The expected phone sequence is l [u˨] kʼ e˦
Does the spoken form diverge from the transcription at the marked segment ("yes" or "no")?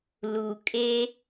no